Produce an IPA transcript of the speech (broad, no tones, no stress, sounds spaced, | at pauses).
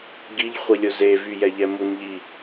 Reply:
ɡ i ʎ χʷ i lʲ ʊ z e v y j ɛ ʎ ɛ m u n ʎ i